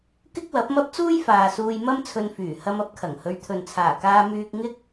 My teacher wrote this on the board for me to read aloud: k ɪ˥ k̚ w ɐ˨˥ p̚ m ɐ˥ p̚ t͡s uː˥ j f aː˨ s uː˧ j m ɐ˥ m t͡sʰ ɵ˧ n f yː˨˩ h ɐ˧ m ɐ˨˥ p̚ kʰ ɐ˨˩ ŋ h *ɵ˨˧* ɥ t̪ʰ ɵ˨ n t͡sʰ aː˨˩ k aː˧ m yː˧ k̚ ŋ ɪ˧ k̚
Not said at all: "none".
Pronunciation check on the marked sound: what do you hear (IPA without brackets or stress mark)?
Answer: ɵ˨˧